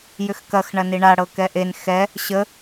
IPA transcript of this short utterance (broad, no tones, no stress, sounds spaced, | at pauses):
j ʏ x k ɐ x ɳ ɐ n i ɳ a ɽ ɤ k ɛ ʔ e n x ɛ | ɕ ə